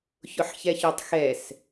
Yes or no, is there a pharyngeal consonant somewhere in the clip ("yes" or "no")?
yes